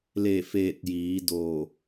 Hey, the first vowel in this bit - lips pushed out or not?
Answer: no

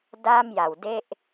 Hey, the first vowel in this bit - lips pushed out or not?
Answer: no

